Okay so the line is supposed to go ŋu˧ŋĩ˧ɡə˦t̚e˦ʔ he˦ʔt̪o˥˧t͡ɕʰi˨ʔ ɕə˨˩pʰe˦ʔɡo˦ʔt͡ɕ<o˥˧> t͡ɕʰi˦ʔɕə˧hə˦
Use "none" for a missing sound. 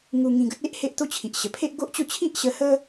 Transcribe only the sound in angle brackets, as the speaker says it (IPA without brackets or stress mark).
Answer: o˥˧